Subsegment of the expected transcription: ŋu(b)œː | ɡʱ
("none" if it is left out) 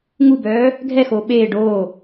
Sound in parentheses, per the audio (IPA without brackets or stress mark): b